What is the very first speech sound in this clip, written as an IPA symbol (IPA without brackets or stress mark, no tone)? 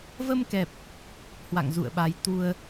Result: v